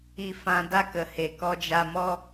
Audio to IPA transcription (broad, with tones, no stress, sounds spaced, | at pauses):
i˧ f ã˧ d a˦ k ə˨ h e˨ k ɔ˧ d͡ʒ a˧ m ɔ˦